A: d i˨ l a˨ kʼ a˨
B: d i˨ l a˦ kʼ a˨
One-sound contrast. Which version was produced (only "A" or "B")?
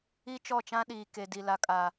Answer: A